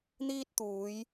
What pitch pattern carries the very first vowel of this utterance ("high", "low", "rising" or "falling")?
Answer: high